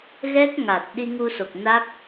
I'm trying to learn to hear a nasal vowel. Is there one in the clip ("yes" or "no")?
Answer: no